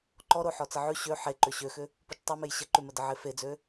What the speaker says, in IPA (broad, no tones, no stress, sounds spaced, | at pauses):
ǃ ɔ ɾ o ħ ɔ t͡s ə ʕ ʉ ɕ ø ħ e ǃ ʏ ɕ ø x ʏ | p ʉ t͡ʃ tˤ e m e j ɕ ə ǃ ʉ m ə d ə ʕ e f e d͡z ø